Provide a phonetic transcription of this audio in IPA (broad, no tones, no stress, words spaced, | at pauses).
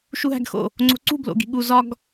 ʃuɦæ̤ɡxo̰ | ŋ͡ǀo̤ǀṳ blo̰ɡi̤ɠu zɒɡ